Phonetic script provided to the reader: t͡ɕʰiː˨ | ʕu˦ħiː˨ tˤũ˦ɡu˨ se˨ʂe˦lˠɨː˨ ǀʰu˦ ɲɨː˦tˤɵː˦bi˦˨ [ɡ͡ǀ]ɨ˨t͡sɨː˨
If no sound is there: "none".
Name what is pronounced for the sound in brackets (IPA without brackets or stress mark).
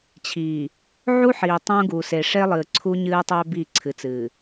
ǀʰ